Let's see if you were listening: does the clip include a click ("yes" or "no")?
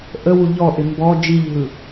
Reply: no